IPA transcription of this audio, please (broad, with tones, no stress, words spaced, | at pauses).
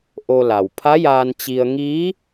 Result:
ʔo˧la˩w pʰa˧˥jaː˧n t͡ɕi˧ə̯ ŋiː˧˥